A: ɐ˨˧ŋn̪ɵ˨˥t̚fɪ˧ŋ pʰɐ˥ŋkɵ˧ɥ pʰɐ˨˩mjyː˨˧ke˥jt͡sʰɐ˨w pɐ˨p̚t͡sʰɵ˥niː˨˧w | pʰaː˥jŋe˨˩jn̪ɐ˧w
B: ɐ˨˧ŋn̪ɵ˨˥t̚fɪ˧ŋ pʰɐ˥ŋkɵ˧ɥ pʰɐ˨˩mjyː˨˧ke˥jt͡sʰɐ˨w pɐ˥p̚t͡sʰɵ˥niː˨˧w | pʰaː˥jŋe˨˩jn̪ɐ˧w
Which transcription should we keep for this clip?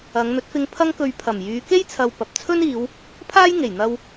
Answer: A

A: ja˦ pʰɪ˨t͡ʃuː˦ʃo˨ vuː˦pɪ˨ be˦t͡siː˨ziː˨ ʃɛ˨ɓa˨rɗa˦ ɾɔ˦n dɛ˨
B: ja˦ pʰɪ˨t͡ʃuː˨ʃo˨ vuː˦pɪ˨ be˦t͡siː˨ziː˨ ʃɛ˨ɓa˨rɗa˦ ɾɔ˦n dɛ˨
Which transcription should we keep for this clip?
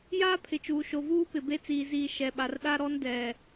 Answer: B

